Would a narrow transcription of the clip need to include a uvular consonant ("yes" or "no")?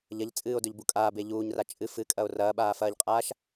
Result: yes